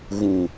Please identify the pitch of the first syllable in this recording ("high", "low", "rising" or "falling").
low